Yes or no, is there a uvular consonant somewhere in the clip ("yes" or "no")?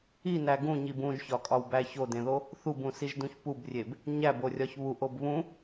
no